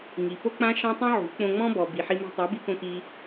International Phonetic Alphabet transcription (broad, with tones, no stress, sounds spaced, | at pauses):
ŋ i˨ p o˦ k͡p ã˦ ʃ ã˦ tˤ õ˦ ʕ ṳ˨˦ k͡p õ˧ ŋ͡m ɔ̃˦ b ɔ˨ b i˨ ħ i˧ m i̤˧ tˤ a˨˦ b i˧ k õ˧ k i˧